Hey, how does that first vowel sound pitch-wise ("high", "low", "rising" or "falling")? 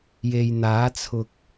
low